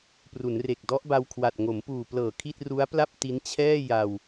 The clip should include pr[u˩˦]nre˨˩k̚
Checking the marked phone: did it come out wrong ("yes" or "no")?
no